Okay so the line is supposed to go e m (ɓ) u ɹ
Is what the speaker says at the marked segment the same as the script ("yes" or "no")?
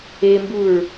no